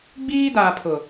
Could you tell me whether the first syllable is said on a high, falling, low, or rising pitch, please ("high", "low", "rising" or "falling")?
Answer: high